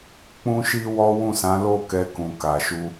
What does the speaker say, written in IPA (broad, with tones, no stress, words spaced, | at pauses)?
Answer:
k͡pũ˦ʃi˦wɔ˦ wũ˦˨sã˨˦ lo˦˨kɛ˧kũ˨ ka˨ʃu˧